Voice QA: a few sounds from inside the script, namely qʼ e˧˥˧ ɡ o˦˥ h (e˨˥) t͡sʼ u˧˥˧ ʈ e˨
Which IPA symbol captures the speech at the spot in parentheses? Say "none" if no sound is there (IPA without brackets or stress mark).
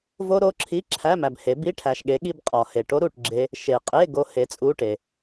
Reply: e˨˥